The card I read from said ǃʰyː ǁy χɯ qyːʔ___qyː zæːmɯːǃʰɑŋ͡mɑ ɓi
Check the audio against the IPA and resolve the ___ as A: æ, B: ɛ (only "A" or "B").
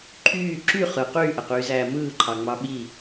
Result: A